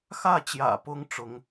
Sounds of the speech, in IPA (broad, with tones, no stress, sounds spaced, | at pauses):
x ä˥˩ t͡ɕ j ä̰˨˩ p ʊ˥ ŋ ʈ͡ʂ ʊ˧˥ ŋ